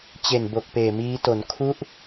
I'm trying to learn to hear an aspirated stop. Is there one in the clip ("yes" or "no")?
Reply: yes